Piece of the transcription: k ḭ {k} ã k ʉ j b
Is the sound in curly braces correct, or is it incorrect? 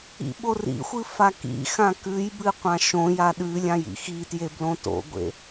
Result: incorrect